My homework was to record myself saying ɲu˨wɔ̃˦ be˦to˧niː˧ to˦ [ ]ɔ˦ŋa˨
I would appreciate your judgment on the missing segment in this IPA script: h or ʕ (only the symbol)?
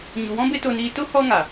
h